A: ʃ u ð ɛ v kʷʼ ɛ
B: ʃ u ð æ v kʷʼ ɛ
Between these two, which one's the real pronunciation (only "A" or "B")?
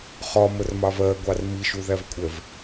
B